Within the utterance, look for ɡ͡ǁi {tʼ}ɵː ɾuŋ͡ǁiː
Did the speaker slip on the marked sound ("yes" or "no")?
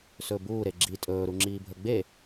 no